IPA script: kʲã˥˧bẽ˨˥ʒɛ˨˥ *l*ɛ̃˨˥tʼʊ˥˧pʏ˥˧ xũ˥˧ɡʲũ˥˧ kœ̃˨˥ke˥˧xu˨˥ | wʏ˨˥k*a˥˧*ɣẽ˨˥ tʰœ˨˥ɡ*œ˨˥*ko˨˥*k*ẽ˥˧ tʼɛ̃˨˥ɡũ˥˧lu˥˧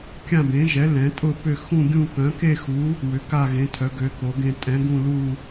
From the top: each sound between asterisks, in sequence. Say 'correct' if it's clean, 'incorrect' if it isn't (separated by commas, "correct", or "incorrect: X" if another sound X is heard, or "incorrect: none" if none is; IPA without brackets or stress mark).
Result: correct, correct, incorrect: ø˨˥, incorrect: ɡ